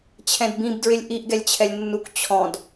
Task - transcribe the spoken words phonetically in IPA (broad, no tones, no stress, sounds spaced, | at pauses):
t͡ɕʰ ɛ̃ d b ĩ b d ɹ ɪ lʲ ʔ i ʔ ɡ ɛ lʲ t͡ɕʰ ɛ lʲ nː u k t͡ɕʰ ɔ̃ d